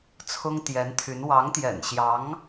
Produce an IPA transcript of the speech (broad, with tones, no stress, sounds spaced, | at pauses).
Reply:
t͡sʰ ʊ˥ ŋ t̪ j ɛ˧˥ n t̪ʰ y˧˥ n w ɑ˧˥ ŋ t̪ j ɛ̰˨˩ n ɕ j ɑ˧˥ ŋ